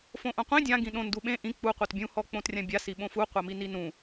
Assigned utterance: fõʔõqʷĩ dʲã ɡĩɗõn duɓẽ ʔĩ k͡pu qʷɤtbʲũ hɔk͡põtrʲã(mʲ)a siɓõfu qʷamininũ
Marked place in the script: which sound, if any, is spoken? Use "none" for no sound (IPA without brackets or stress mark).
bʲ